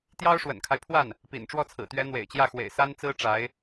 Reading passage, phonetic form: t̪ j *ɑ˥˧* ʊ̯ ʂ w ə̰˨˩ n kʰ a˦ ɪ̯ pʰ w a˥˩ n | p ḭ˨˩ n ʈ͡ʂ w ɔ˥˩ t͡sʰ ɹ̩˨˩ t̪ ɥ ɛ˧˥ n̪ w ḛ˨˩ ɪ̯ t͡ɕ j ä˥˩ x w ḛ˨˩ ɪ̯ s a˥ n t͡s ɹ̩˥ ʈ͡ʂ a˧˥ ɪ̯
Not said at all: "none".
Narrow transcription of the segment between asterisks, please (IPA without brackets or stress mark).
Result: ɑ˥